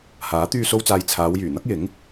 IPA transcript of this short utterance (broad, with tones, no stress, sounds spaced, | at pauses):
h aː˨˥ t̪ yː˧ s o˧ w t͡s aː˨ j t͡sʰ aː˨˧ w j yː˨˩ n̪ ɐ˥ k̚ j ɪ˨˥ ŋ